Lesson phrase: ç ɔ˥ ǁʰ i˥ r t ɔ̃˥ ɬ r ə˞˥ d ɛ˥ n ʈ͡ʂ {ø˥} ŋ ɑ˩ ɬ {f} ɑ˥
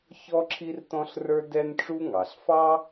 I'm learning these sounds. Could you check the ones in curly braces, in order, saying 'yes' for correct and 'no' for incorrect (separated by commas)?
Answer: no, yes